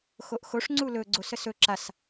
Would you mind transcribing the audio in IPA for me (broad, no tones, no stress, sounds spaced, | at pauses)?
x o ʔ x o ʂ ŋ͡ǀ u l ɵ ɡ͡ǀ o s ə s ɵ ǁ a s